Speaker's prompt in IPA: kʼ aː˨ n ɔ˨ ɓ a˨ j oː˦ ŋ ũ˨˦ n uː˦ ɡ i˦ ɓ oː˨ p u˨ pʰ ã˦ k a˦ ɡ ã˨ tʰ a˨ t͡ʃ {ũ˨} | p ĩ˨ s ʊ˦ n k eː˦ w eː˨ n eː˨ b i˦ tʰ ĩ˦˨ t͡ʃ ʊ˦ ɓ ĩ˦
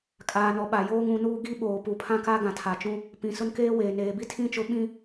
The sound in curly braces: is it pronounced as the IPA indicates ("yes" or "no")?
no